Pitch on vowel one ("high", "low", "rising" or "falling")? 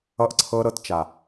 high